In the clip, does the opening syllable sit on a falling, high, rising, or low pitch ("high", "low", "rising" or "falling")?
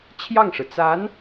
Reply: falling